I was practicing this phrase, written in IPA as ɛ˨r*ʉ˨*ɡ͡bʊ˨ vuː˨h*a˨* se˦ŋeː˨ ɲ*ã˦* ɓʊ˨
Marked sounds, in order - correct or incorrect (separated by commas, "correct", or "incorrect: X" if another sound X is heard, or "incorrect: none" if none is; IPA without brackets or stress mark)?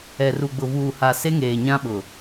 incorrect: u˨, correct, correct